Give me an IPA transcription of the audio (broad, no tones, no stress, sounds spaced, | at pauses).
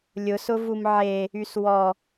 lʲ ʊ s ʊ v u m ʕ e | y s w ɔ